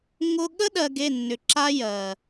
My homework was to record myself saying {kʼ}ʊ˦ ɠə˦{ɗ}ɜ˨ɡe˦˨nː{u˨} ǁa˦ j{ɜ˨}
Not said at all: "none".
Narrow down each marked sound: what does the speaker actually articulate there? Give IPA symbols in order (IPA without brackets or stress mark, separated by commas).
ŋ, ɗ, ʏ˨, ɜ˨